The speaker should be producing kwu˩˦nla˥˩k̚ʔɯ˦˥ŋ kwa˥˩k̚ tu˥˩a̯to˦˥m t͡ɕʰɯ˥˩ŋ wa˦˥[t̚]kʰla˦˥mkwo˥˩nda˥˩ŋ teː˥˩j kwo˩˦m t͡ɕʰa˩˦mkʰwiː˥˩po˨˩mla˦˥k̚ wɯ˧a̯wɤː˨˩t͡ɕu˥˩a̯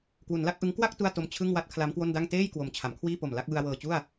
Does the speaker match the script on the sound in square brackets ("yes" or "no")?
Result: yes